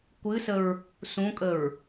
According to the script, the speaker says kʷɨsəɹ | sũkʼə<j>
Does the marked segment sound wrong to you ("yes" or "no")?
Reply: yes